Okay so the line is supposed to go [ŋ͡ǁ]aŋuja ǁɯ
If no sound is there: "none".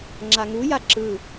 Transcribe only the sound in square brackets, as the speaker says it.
ŋ͡ǁ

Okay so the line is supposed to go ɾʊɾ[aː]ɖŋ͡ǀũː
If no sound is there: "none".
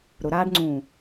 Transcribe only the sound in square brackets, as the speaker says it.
aː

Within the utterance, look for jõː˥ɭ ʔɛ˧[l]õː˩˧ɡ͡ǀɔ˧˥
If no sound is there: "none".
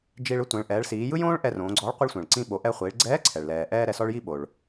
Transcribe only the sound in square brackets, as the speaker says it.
r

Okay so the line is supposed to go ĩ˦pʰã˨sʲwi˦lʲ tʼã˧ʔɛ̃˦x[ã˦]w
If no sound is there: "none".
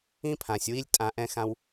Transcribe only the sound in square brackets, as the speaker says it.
ã˦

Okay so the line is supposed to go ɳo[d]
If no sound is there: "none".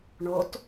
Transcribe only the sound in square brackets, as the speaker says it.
t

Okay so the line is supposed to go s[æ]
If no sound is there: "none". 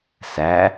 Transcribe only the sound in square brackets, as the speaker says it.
æ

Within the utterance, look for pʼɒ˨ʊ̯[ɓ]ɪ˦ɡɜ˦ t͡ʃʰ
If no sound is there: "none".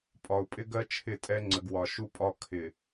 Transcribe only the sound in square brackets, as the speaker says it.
pʼ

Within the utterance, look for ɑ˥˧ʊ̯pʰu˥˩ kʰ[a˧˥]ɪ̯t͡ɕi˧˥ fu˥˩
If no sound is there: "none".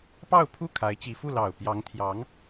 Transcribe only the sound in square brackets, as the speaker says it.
a˧˥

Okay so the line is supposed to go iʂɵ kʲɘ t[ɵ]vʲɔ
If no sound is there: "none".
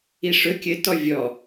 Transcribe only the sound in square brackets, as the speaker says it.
ɔ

